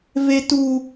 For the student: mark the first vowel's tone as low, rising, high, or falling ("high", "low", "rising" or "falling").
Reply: high